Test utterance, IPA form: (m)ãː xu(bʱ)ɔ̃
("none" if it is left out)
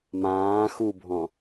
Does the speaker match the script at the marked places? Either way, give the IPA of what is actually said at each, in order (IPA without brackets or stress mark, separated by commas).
m, bʱ